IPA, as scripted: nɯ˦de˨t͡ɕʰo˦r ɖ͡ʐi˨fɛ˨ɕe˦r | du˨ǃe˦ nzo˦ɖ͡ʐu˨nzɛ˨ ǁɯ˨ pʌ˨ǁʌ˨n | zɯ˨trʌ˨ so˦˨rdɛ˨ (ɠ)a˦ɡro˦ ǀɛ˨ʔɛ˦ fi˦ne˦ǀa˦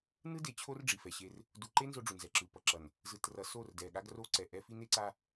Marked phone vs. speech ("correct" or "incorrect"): correct